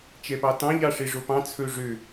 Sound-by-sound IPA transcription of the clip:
t͡ʃ ɛ p ɑ t ɑ̃ ʎ ɑ ʂ e ʐ o p ɑ̃ t͡sʰ ɵ ʐ ø

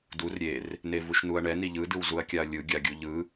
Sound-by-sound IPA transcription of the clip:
d u r ɾʲ e r | n e v u ʃ n u ɐ̯ ɳ ɛ n i ʎ ɯ d ɯ w z u ɐ̯ kʲ a ɐ̯ lʲ ɯ ɡʲ a ɡʲ u ʎ ɯ

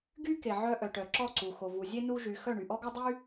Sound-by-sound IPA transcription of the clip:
ɡ y˦ k e˨ ʕ œ˧ ʔ œ˨ ʈ œ˨ ǁ ɔ˦˨ ǀ u˨ x o˨ v u˨ zʲ e˧ n u˧ ʒ y˨ x œ˦˨ ɳ y˨ ʔ ɔ˦ ɡ o˦ dˤ y˦

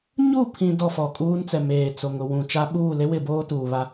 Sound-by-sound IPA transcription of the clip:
ɲ u˦˨ pʰ ĩ˨ d ɔ˦˨ f ɔ˨ kʼ uː˦ n t͡s ɛ˨ m eː˨ t͡s o˨ ŋ ʊ˨ w ũ˨ t͡ʃ a˦ ɓ uː˦˨ l e˦ w ɪ˦˨ b oː˦ t uː˨ β a˦

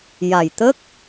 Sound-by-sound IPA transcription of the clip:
j a˨˩ j t̪ ə˦˥ k̚

